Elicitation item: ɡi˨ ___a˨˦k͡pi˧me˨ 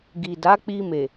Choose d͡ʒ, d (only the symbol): d